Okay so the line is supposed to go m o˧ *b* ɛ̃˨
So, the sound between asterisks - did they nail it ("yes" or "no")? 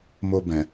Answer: yes